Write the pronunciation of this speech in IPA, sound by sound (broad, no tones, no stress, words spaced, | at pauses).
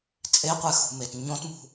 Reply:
t͡sʼeqʷɛxṳmet ɲõtmṳ